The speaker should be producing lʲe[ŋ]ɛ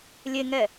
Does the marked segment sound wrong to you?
no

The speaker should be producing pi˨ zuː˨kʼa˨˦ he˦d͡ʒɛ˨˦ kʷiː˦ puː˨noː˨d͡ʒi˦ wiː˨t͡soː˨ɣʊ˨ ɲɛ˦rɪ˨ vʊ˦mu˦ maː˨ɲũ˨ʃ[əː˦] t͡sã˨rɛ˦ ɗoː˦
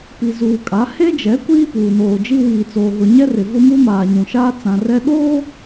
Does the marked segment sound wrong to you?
yes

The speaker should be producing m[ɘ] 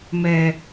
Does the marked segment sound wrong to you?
yes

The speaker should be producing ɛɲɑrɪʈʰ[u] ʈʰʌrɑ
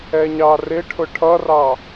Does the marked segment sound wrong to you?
yes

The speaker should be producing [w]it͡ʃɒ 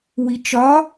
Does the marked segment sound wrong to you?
no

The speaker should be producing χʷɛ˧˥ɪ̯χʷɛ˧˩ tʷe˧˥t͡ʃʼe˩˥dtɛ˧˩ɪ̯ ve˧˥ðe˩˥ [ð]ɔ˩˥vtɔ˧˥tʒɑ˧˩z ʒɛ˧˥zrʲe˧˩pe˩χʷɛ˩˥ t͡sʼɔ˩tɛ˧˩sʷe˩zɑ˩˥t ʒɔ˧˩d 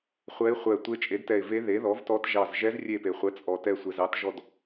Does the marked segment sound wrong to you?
no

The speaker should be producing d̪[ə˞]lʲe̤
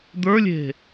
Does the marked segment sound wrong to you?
no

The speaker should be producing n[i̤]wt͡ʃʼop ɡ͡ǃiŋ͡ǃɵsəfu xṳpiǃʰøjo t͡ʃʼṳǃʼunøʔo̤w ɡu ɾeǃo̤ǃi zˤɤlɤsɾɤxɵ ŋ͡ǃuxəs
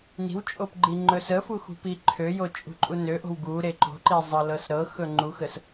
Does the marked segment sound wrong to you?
no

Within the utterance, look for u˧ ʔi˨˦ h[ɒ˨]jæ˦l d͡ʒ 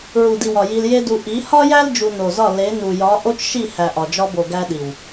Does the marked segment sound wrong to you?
yes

